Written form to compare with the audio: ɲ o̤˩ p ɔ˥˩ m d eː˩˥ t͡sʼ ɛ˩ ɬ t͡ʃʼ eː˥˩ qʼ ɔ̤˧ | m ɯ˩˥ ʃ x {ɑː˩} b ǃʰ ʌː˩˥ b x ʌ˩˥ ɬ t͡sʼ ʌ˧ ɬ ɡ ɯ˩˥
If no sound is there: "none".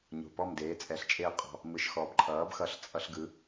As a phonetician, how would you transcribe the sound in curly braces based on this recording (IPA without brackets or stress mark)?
ɔː˩